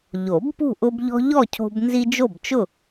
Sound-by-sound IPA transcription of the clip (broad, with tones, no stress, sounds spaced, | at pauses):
ʎ o˨˩˦ b p ṳ˥˨ ʔ ʊ˦ b ʎ ɔ̤˦ ʎ ɔ˥˨ cʰ o̤˦ b n z i˦ d͡ʒ o˥˨ b t͡ʃ ʊ˥˨